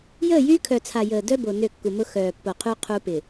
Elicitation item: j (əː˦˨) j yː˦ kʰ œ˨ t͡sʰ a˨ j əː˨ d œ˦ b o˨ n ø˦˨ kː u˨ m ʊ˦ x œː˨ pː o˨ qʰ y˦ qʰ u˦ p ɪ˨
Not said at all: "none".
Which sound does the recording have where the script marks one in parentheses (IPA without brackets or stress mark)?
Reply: əː˦˨